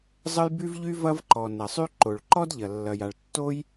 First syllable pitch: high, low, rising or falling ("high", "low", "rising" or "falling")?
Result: high